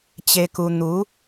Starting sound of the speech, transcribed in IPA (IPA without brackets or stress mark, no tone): t͡ɕ